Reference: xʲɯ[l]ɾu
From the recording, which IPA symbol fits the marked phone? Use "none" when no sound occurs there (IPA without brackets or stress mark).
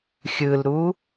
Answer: l